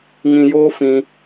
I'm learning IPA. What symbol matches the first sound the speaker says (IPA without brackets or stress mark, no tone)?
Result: ŋ